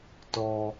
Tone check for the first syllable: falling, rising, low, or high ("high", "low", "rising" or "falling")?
high